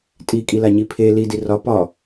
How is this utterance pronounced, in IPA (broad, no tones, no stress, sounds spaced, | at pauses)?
tʼ i kʼ i l a ɲ i pʰ e l i d i r ɒ p ɒ